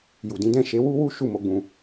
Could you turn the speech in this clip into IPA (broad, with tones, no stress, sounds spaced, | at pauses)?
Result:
j u˨ d ĩ˨˦ d ɛ̃˦˨ ʃ e˨˦ w u˦ w u˦ ʃ u˦˨ m o˨˦ ɡ͡b ũ˧